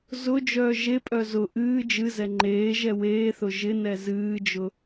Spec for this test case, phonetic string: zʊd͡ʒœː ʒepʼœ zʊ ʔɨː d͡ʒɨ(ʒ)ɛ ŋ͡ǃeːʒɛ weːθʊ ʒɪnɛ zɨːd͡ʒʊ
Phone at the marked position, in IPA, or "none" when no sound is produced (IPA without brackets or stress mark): z